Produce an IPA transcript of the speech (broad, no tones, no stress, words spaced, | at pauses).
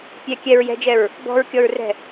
pʲɛ kʲɛɹ jɛ̤d͡ʒɛɹ | bɔ̤ɹkʲɔɹrɛ̤